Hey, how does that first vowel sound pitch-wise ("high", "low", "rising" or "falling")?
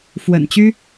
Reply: low